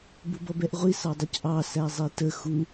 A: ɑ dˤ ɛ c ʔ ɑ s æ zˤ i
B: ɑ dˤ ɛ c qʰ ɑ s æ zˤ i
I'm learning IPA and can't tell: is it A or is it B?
A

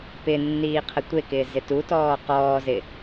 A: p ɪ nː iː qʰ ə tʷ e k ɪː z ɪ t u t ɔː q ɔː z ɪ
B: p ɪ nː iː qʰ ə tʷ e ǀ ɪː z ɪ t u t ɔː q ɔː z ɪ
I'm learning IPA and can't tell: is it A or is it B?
A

